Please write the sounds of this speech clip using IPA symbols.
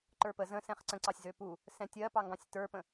ǃ ə˞ p ə z ə̃ s ɛ̃ χ ǀ ə̃ ǀ ɑ sʲ z ø p u | s ɛ̃ tʲ ɜ p ɑ ŋ ɡ ɑ̃ sʲ t ə˞ p ə̃

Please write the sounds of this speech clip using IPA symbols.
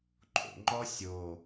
ǃʰ o̰ ŋ͡ǃ ɔ sʲ o

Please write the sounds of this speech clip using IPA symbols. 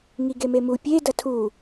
ŋ i ɡ e m e m u pʲ e d ɐ tʰ u

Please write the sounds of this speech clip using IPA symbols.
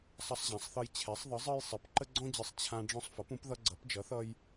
sˤ ʌ˦ sˤ ʑ ã˨˥ sˤ θ ʌ˦ j t͡ɕʰ ɛ˨˥ sˤ ðˤ ɨ˨˥ zˤ ɨ˦ j sˤ ɨ˨˥ p ǃ ə˦ ɡ͡ǀ ɔ̃˦ d͡ʑ ɨ˨˥ sˤ t͡ɕʰ ã˦ ɖ͡ʐ ɔ̃˦ sˤ f ʌ˨˥ p ũ˨˥ p ð ʌ˦ ɡ͡ǀ ʌ˨˥ p d͡ʒ ʌ˨˥ θ ʌ˦ j

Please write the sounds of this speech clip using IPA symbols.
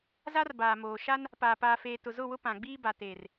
z a˦ r b aː˨ m oː˨ ʃ a˦ n | p aː˨ p aː˨ f eː˨ t ʊ˨ z ʊ˦˨ w ʊ˦ p ã˨ ɡ͡b iː˦ b a˨ t eː˨ r

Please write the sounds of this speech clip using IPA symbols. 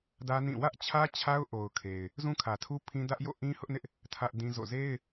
d ä˦ n ĩ˦˨ w ä˦ ʔ t͡ɕʰ ä˦ t͡ɕʰ a˦ ʊ̯ ʔ o˨ ʊ̯ kʰ e˨ ɪ̯ | z ũ˦ kʰ ä˨ tʰ u˦ pʰ ĩ˦ d ä˦ ʔ j o̰˦˨ ʔ ĩ˦ h ʊ˦ ʔ n ɪ˦ ʔ | tʰ ä˦ ʔ d ĩ˦ z o̰˦˨ z e˦ ɪ̯

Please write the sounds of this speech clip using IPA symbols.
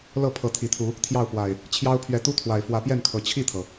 l ɤ˥˨ pʰ ɤ˨˦ t̪ʰ i˨˩ t̪ʰ u˨˦ | t̪ʰ j ɑ˥˨ ʊ̯ p w a˨˩ ɪ̯ | t͡ɕʰ j ɑ˦ ʊ̯ pʰ ɥ ɛ˨˦ t̪ u˦ t̪ʰ w a˨˩ ɪ̯ f w ä˨˦ p j ɛ˥˨ n kʰ ɤ˨˩ t͡ɕʰ i˥˨ t̪ʰ ɤ˩

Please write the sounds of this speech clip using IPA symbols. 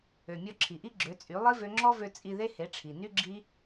ø˨ mʲ ɔ˧ ǁʰ i˨ ʔ i˦ ɡ͡ǁ ø˨˦ t͡sʼ y˨˦ lˠ i˦ v ø˧ ŋ͡ǁ ɔ˦ v ø˧ t͡sʼ i˧ ð e˦ h e˨˦ ʈ͡ʂʰ i˨ n y˦ ɡ͡ǁ i˦

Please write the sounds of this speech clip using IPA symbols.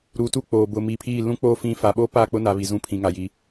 ɾ u˨ t u˦ k͡p oː˨ b ʊ˨ m i˨ pʰ iː˦˨ l ũ˦ k͡p oː˦ f ĩ˦ f a˨ ɓ o˦ p a˦˨ k͡p ʊ˦ n a˨˦ β i˨ z ũ˦ pʰ ĩ˨ ŋ a˨ j i˨˦

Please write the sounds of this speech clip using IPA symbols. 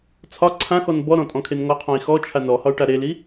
t͡sʰ ɒ ǀʰ ã x ɔ n b ɔ ɾ ɔ̃ tʼ ɔ̃ kʰ e n ŋ ɔ qʰ ɔ̃ i̯ x ɔ t͡ʃʰ a n ɔ h ɒ u̯ ʈ a ɾ e l i

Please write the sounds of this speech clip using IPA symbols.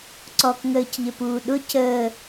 ǀ ɔ k ŋ əː c ʎ ə p uː ɗ ʊ c əː

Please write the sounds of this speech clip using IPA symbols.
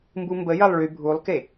m b u m b ə j ɐ lˠ ɭ y bʱ u lˠ k e

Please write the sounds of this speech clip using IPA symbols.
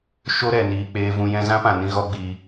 ʃ o˦ ɾ ɛ˨ n iː˨ k͡p eː˧ v ũ˧ j ɛ̃˧ z ã˦ p ã˨ n ĩ˧ ɣ ɔ˦ ɡ͡b iː˧

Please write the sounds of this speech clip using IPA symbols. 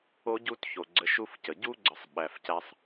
o˥ ɟ u˦ t ç o˩ ɡ͡ǀ ə˨ ʃ u˦ f c ə˩ ɟ u˥ ɡ͡ǀ ə˨ sˤ ɓ æ˩ f c æ˨ sˤ

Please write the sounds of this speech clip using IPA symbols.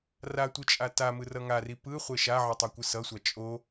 r a tʷ ɯ t͡ʃʼ a t a m ɯ r ʌ ŋ a r i p ɯ χʷ e ʃ a ʕ ʌ tˤ a kʷ ɯ s ʌ sʷ a t͡ʃʼ o

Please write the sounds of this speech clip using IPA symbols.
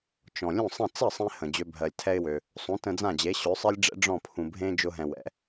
t͡ʃ ɔ̃˩ lʲ ũ˥˩ sˤ ẽ˥˩ t͡s ə˥˩ sˤ ẽ˧ h ə̃˩ d͡ʑ ø˧ bʱ ɜ˩ lʲ tʰ ɛ˥ ɪ̯ w ø˩ | sˤ ũ˩˥ t ə̃˧ d͡z ã˥˩ d͡ʑ e˩˥ ɕ ø˩˥ sˤ ɜ˥ lʲ ɖ͡ʐ ɛ̰˥ ɖ͡ʐ ɔ̃˥˩ pʰ ũ˩ bʱ ẽ˥ d͡ʒ ʊ˧ ɦ ɛ̃˩ w ɛ̰˩˥

